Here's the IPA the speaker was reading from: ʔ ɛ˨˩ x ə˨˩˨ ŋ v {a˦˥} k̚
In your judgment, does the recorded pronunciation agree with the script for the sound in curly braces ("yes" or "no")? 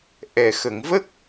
no